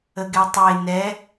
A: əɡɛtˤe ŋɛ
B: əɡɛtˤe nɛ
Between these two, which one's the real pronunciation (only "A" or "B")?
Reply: B